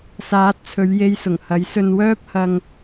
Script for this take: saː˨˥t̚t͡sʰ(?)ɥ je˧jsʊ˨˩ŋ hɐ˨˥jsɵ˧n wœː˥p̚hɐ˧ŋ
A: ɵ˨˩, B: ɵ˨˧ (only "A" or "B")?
B